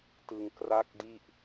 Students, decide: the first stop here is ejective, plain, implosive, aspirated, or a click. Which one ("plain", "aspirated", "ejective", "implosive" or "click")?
plain